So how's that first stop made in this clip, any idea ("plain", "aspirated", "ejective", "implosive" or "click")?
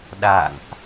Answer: implosive